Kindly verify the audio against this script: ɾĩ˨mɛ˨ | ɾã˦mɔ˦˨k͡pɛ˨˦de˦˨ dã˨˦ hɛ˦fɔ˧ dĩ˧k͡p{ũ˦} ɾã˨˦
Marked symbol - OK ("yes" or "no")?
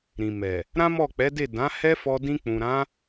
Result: no